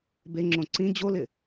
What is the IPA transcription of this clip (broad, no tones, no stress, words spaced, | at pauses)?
beŋ͡ǁõ ǀĩ d͡ʑolɪ